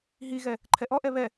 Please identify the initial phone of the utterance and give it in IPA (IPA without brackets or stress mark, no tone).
ɦ